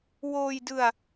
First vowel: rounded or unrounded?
rounded